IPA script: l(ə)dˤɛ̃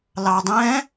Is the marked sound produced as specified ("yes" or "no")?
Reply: no